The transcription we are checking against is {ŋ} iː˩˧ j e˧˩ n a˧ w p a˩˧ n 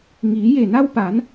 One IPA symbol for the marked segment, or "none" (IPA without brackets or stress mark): ŋ